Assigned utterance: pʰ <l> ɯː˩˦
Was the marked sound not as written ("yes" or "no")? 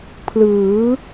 no